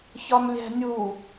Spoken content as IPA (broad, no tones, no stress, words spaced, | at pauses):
çɒmlʲæ̤nʲu